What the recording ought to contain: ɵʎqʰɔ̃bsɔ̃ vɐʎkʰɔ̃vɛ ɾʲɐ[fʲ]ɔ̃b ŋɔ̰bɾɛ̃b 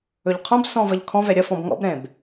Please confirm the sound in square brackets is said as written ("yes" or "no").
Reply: no